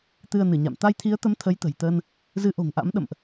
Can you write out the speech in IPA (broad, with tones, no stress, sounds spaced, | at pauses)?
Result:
t̪ ɨ˧ ə̯ n ɨ˧˩ ɲ a̰˧˨ m t̪ a˧ j t̪ʰ i˨˦ ə̯ t̪ ə˨˦ m t̪ʰ ə˨˦ j t̪ ə̤˨˩ j t̪ əː˧ n | z ɨ˨˦ ʔ o̤˨˩ ŋ ʔ a̰˧˥ m ɗ ə̰˧˨ m ʔ